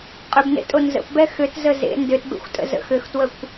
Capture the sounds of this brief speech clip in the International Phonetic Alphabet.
qʼ ʏ b n ḛ tʼ o n z ə̰ p b ɛ x ʏ t z ə z ḛ n d ʏ t b ḛ xʷ tʼ ə̰ z ə̰ x ʏ x t w ə kʷ

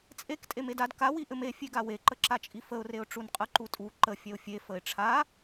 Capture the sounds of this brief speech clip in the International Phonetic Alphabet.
t͡sʼ e k tʼ e m e d a d k a w i ʔ ɘ m e fʲ e ɡ a w e ǃ ə ǁ a t͡ʃʼ i f ə ʊ̯ r e ʊ̯ ʈ͡ʂ u n qʼ ə ǃ u tʼ u ǃ ə fʲ ɛ ʊ̯ fʲ e f ə ɪ̯ ʈ͡ʂʰ a

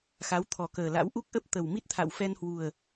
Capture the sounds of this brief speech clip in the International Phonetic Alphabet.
x a˨˦ w t̪ʰ ɔ˨˩ k əː˨˩ l a̰˧˥ w ʔ u˦˥ k̚ ʔ ə˦˥ p̚ t̪ ə˨˩ w m i˦˥ t̚ t̪ʰ a̰˧˨ w f ɛ˧ n h w u˨˩ ə̯

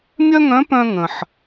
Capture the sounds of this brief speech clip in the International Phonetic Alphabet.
mʲ œ˥ ŋ œ̃˧˥ p œ̃˥ ŋ ə̃˩ ħ

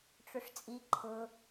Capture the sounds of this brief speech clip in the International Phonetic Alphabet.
ʈ͡ʂ ʊ ʂ t͡sʼ i ǃʰ ʊ

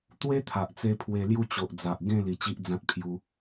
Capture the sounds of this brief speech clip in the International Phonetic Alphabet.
t̪ w e˦ t̪ʰ a˨ ʔ t͡s e˧ pʰ w e˧ l j u˥˧ t͡ɕ o˨ ʔ d͡z a˨ ʔ ɡ ẽ˥˧ l i˧ t͡ɕ i˦ ʔ d͡z ã˦ t̚ pʰ j u˧

